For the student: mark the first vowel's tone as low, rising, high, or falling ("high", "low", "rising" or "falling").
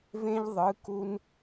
high